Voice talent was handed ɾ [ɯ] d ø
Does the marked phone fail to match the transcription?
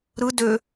no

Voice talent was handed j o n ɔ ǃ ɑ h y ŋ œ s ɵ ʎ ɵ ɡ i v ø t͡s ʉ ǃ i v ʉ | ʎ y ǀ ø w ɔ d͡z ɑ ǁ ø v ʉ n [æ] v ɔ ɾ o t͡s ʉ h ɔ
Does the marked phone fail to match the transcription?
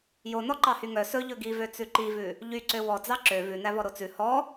no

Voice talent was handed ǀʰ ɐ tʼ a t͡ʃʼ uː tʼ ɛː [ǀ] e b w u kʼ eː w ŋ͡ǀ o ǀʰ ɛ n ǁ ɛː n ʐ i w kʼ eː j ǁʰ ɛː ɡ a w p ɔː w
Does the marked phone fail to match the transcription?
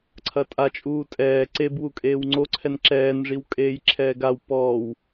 no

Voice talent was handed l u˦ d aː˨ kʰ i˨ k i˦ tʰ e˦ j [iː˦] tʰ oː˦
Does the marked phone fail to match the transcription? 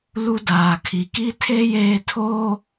yes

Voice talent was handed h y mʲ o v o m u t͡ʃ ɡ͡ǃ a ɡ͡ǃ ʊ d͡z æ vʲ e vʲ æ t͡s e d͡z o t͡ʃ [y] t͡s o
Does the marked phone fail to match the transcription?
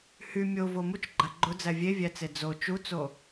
yes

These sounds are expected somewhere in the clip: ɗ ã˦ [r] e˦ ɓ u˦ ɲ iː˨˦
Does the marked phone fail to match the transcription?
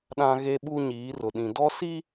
yes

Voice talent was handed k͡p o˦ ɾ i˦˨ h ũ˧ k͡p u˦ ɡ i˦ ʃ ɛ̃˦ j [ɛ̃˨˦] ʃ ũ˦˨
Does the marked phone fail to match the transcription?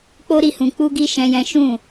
yes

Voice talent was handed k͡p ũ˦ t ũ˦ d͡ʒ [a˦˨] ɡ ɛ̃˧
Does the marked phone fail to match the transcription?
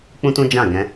yes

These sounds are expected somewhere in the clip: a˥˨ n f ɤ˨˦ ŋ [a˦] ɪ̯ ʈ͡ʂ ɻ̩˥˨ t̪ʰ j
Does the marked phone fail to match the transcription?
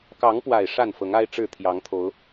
no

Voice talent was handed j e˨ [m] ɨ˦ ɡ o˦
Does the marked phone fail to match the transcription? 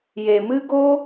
no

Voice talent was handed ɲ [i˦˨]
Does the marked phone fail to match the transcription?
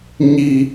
yes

